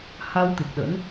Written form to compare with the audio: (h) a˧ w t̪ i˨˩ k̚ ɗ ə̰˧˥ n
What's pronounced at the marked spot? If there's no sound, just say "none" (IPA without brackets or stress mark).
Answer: h